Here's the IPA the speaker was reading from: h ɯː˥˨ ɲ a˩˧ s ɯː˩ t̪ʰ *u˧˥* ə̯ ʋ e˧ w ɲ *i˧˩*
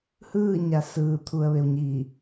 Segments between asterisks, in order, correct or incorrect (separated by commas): incorrect, correct